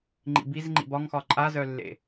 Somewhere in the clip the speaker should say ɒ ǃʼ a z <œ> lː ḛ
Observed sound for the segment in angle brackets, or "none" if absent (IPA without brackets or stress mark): œ